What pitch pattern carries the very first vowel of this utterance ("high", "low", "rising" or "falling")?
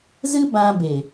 high